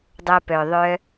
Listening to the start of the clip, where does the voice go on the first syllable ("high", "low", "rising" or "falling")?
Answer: low